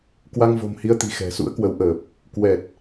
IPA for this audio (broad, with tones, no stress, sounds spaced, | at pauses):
k w a˧ ŋ v o̤˨˩ m h i˧ ə̯ t̪ i̤˨˩ x ɛ̤˨˩ s ṵ˧˥ ə̯ k w ə˨˦ w ʔ əː˨˩ p̚ | k w ɛ˨˩ t̚